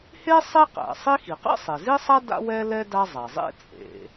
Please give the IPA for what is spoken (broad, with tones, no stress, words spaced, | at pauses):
he˥ sˤi˥qæ̰˩ sˤi˥xi˩ qɛ̰˥sˤe˩zi˥sˤa˥ da̰˥wɛ˥lɛ˥ da˥zˤa˩zˤḛ˥ t͡sʼḛ˩